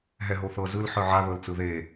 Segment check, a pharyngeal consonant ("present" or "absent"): present